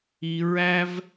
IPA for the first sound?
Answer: i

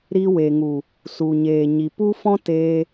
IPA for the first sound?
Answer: ɾ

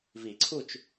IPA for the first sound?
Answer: v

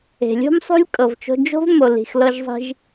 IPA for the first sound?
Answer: e̤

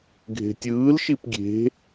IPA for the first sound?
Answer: ɡʱ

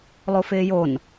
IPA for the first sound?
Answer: lˠ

